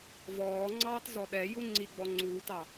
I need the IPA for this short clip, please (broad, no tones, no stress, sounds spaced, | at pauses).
v ɔː ŋ͡ǀ ɑː t z ɔ ɗ ɛ j u ŋ͡ǀ i ɡ͡b ɔ ŋ͡ǀ uː t ɑ